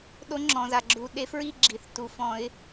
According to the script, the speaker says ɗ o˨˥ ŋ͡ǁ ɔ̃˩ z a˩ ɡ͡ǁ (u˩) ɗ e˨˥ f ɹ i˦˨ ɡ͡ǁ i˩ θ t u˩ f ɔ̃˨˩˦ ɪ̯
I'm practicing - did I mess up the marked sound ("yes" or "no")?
no